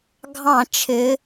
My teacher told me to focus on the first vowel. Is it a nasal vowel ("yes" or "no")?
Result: yes